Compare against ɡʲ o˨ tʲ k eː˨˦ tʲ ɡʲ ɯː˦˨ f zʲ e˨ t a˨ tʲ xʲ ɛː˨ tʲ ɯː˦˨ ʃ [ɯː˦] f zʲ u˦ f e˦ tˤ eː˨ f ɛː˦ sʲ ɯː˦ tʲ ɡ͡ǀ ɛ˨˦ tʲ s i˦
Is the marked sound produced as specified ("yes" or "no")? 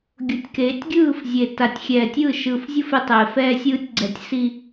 no